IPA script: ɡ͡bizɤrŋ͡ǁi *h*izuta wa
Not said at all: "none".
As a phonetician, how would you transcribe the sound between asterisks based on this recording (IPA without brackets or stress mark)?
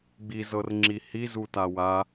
h